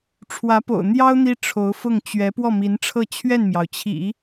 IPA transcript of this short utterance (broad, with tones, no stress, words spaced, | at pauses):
ʈ͡ʂʰwä˧˥po̰˨˩ʊ̯n̪jɑ˥ʊ̯ n̪i˥ʈ͡ʂʰo˧˥ʊ̯fʊ˥˩ŋ t͡ɕɥɛ˧˥ pwɔ˥˩mi˧˥nʈ͡ʂʰɤ˥˧ t͡ɕʰɥɛ˥˩nmjɑ˩ʊ̯t͡ɕʰḭ˨˩˦